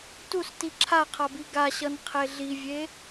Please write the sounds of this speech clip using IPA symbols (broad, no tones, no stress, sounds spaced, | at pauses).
t u s t i ǁʰ a qʰ a b i ɡ a ɕ ʌ n qʰ e ɮ i vʲ e